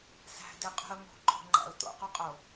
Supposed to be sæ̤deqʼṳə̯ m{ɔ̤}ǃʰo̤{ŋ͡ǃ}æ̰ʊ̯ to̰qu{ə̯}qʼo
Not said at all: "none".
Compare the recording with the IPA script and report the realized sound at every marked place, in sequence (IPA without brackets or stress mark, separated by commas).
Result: o̤, ŋ͡ǃ, none